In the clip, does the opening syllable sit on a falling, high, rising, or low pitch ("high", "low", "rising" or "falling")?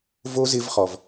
high